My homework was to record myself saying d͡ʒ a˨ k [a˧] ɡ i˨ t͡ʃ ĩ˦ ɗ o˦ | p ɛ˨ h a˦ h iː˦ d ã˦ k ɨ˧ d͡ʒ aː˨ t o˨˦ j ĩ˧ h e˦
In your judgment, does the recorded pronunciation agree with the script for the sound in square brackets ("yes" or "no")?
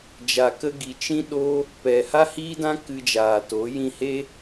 no